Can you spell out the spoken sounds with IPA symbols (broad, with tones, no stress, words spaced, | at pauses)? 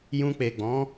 jũ˧k͡pe˨ ɡ͡bɔ̃˨˦